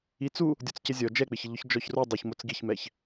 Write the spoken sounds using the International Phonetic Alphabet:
i t͡s u | dʲ ɔ t͡s c ɪ zʲ ɔ d͡ʒ ɛ k͡p ɪ ç ɪ ʎ ʊ ç d͡ʒ ɔ ç r u dˤ u ç m o t͡s ɡ i ç m ɛ ç

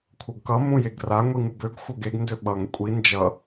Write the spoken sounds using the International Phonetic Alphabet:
kʷʰ ɤ ɡ k ʌ m ũ j e ɡ r a ŋʷ i ŋ u b ø ɡ xʷ ɤ ɡ e ɡ n d ø ɓ ʌ ŋ kʷʼ i n d͡ʒ ʌ

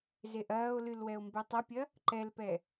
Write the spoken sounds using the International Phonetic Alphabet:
z e ʔ ɐː o̯ l y l w ɛ o̯ m b e tˤ ɐ pʲ ɐ | ǃ ɛ l p ɛ

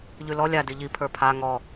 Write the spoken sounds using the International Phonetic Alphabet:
ʎ ʉ l ɔ lʲ a d i ʎ i pʰ ə˞ pʰ a ŋ ɔ

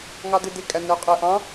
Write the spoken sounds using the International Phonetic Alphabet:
ŋ ɑ d ɪ d ɪ kʼ æ nː ə o̯ qʼ ɛ ʔ ɑ̃

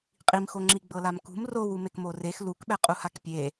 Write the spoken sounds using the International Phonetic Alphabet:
qʼ i m x o ŋ͡ǁ i ɡ͡b ɤ l a m k ṳ m r o w u m e k m o r e x l u k ɓ ɛ qʼ u h a k pʲ e

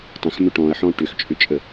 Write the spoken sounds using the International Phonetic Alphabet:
tˤ ə̃ x m ʏ ʈ ɔ̃ ɐ̯ ħ ɔ̃ ʈ ʏ x t͡ʃʼ ʏ t͡ʃʼ ə

